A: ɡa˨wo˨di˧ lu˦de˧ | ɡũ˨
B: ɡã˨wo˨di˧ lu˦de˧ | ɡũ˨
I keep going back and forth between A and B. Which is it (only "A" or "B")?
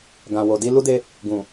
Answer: B